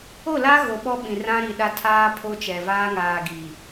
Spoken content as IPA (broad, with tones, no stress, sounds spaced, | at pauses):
o˦˨ l a˦ ɣ o˨ ɓ ɔ˦ ɓ ĩ˨ r ã˦ ɾ i˨ ɗ a˦ tʰ aː˦ pʰ o˦ t͡ʃ ɛ˨ v aː˦ ŋ aː˨ ɡ i˨